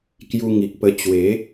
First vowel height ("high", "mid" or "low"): high